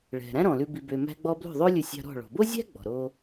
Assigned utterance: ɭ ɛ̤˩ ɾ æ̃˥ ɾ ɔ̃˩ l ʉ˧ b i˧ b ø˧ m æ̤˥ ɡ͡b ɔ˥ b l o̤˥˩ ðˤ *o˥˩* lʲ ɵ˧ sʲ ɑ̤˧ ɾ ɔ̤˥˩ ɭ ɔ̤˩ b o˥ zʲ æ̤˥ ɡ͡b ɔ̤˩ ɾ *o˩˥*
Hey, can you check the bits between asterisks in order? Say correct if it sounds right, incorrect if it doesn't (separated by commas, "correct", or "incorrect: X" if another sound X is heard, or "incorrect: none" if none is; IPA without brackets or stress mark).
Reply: incorrect: o˥, incorrect: o˧